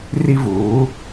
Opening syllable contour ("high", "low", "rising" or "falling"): high